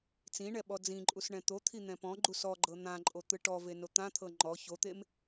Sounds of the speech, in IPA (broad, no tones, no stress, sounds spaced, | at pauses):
t͡s ĩ ɳ ɛ ɓ ɔ d͡z ĩ ǃʼ u s ɳ ɛ̃ t̪ o t̪ʰ i n̪ ɛ̃ p ɔ̃ ɡ͡ǃ u s ɔ ɡ͡ǃ ɤ n̪ ã ǃʼ o t̪ ɯ ʈ ɔ v e n o t̪ ã t̪ʰ ɤ ŋ͡ǃ ɔ ç o t̪ e m